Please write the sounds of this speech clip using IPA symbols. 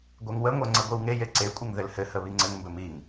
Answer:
ɡʷeŋwəŋʷɛ ŋ͡ǀəɡʷiwŋeje ǀekʷʼɘŋ ðɘlhɘhə βiŋ͡ǀɘŋmbɘ miŋ

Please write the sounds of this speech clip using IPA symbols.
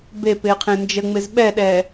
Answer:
bepɪːqʰẽ nd͡ʒəŋ͡mɪz ɓɛɗɛː

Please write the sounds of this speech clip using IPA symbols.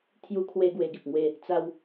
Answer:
t̪ʰju˧kʰwe˧ ɡwe˧ɡi˨p̚ŋwe˥˧ | t͡sa˧w

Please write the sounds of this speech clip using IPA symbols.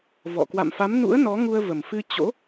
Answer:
vɔ̰˧˨ kwa̰˧˨mfa˨˦mnṵ˧˥ə̯ nɔ˨˦ŋu˧ə̯ və˨˩mfɨ˧t͡ɕo̰˧˥

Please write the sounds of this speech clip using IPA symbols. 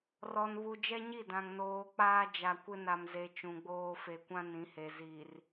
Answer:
rɔ˨nβu˨ d͡ʒɛ˦ɲi˦˨dã˨ŋ noː˨ k͡paː˦d͡ʒa˨kʷɪ˦na˨m ze˨ t͡ʃũ˨ɡ͡boː˦ fe˨kʷã˦ nĩ˨˦he˨ zi˨r

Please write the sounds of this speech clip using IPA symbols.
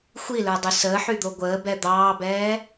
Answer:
xʷilə˞dˤy səːħyd̪o ɡʷəːbɛ d̪ɑːbɛː

